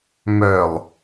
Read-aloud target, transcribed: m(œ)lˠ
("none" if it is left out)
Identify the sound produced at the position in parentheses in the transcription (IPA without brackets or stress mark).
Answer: œ